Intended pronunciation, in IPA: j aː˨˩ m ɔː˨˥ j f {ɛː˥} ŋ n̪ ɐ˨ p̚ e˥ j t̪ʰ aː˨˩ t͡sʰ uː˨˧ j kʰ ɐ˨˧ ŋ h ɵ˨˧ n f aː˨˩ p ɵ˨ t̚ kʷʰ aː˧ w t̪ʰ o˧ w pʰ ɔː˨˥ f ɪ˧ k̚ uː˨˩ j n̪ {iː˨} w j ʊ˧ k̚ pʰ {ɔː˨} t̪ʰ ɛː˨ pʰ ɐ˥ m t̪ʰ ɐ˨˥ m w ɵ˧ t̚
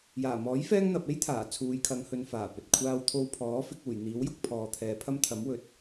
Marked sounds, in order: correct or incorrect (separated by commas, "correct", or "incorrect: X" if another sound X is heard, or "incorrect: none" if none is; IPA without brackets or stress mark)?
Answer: correct, incorrect: iː˨˥, correct